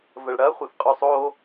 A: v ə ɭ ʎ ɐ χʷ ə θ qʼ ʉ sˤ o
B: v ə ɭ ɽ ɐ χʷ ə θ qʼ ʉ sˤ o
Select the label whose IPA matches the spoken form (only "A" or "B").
B